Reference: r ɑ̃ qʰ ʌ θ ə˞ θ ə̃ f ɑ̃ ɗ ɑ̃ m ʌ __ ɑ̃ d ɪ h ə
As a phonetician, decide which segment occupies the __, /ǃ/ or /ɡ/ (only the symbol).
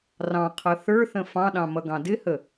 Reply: ɡ